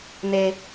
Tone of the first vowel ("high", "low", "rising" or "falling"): high